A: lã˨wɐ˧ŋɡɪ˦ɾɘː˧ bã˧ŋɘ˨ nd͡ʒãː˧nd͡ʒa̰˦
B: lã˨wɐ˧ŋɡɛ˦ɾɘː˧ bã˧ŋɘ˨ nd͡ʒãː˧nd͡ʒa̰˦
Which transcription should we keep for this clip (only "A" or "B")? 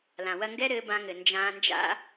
B